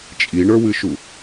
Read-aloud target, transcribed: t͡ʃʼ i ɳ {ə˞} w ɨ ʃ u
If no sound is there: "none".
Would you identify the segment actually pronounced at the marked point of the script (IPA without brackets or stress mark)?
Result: ə˞